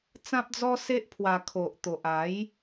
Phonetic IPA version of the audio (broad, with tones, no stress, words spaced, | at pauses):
t͡sã˦p̚d͡zɔ˦ se˦ʔpʰwa˧ kʰo˨ʔt̪o˨ʔa˨˦j